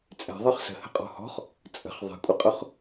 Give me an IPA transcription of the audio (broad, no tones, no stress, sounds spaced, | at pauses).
t͡sʼ ɛ̤ ðˤ ɯ χ s ə̤ h ə̤ qʼ ɔ̤ h ɔ̤ χ | t͡sʼ ə̤ χ ðˤ ɛ̤ kʷʼ ə qʼ ʊ χ